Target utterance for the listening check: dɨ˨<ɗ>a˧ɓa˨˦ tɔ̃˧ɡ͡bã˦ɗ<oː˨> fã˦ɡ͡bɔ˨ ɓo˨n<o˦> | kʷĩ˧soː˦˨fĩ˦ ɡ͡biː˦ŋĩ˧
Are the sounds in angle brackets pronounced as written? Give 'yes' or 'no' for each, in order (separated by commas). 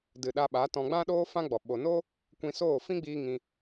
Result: yes, no, yes